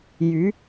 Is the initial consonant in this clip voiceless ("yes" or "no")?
no